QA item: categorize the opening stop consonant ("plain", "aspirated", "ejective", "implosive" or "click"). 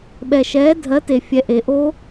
implosive